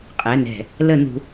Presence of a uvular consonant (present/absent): present